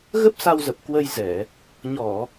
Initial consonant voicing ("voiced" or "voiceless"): voiced